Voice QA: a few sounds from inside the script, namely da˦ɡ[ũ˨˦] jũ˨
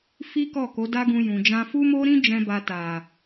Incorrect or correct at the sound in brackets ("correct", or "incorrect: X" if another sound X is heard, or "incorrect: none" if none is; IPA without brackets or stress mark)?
incorrect: ũ˧